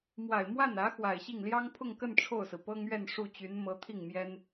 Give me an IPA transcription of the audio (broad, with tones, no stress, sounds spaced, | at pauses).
m w a˨˩ ɪ̯ m w a˥˩ n ä˧˥ x w a˨˩ ɪ̯ ɕ i˥˩ ŋ l j ɑ˥ ŋ pʰ ʊ˥˧ ŋ k ə˥˧ n ʈ͡ʂʰ o˥˩ ʊ̯ s ɹ̩˩ p ɤ˥ ŋ ɥ ɛ˥˧ n ʂ u˥˩ t͡ɕ y˧˥ n m ɤ˧˥ t̪ʰ i˥˩ ŋ m j ɛ˥ n